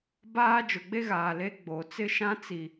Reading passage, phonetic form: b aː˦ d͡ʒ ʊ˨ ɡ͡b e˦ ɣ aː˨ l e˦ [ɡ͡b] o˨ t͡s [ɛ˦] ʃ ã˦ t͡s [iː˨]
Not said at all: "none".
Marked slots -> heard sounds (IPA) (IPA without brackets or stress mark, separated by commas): ɡ͡b, ɪ˦, i˨